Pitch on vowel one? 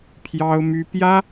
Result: high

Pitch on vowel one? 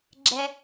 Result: high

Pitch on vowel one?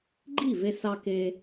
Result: falling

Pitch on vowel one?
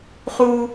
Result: high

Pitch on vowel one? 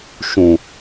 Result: low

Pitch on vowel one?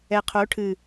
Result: low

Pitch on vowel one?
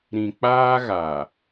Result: low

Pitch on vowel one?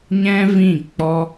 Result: high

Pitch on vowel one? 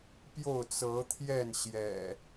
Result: falling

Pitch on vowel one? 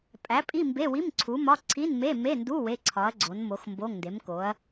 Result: rising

